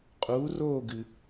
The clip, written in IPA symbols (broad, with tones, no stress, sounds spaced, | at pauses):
qʼ uː˨˥ r oː˥˨ ɡ ɨ˩